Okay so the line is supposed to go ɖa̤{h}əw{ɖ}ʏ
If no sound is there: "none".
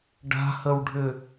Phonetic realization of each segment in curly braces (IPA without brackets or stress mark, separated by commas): h, ɖʱ